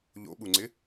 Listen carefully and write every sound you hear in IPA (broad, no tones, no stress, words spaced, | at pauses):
ʎo̰ɓuŋ͡ǀɪ